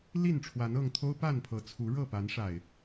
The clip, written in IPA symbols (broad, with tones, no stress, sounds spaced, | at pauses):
l i˥˨ n ʈ͡ʂʰ w a˨˦ n ɤ˥˨ ŋ t̪ʰ o˦ ʊ̯ p a˥˨ n pʰ ɤ˨˩ t͡sʰ u˨˦ ɻ ɤ˥˨ p a˨˦ n ʂ a˨˩ ɪ̯